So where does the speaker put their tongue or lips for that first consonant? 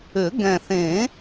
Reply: velum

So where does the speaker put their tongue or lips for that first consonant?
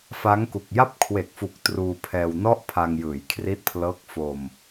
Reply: lips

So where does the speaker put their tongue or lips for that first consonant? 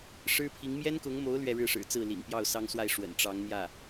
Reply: retroflex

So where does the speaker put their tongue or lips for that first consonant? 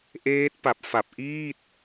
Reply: throat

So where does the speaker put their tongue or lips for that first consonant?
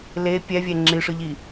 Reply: tongue tip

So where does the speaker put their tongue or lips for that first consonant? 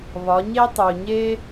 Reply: lips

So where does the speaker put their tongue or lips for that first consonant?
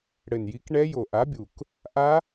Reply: retroflex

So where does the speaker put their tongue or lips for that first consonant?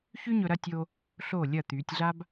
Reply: palate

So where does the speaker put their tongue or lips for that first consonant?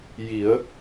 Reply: palate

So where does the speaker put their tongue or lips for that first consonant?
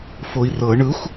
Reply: lips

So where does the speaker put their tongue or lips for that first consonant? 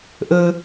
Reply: throat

